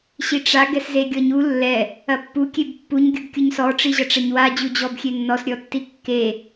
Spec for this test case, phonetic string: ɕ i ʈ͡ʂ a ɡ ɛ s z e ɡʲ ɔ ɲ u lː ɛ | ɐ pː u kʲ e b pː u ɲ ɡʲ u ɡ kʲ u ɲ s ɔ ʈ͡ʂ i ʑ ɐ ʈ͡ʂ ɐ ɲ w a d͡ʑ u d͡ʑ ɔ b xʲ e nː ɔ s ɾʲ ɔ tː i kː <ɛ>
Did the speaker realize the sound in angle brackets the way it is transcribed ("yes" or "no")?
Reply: no